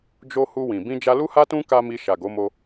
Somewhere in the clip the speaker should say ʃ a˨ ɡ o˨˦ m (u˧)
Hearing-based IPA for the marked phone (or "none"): o˧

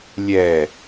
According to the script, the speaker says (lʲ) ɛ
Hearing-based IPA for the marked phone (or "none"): lʲ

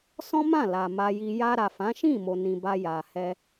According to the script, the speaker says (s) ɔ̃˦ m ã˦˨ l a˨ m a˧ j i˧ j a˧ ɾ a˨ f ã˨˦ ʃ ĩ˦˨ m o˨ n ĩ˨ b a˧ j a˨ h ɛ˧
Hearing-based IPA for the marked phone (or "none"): s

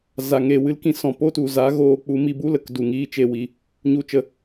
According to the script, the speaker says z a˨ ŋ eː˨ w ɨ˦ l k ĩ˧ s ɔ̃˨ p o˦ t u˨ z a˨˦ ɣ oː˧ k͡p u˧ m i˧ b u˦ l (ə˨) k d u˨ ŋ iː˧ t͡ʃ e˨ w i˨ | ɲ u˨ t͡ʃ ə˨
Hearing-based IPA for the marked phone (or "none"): ə˨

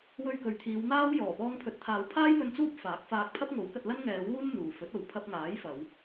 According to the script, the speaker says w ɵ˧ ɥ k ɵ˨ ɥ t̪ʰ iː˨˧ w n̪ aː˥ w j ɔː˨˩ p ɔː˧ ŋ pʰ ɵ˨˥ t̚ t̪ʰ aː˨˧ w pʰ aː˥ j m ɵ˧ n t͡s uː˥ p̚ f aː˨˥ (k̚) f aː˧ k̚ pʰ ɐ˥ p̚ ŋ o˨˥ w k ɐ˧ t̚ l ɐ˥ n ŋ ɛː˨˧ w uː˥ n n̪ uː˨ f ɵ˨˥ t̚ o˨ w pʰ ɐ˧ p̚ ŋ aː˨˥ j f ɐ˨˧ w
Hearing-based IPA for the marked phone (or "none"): k̚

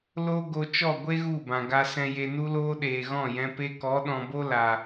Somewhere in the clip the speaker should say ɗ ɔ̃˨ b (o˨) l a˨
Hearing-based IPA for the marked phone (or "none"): o˦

